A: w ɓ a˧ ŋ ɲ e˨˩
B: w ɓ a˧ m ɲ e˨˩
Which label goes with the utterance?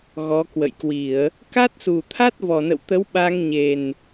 A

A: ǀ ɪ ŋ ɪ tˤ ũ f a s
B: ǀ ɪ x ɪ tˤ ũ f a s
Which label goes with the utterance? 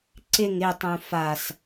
A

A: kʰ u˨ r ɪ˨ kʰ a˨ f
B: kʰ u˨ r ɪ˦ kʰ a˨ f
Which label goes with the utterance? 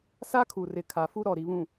A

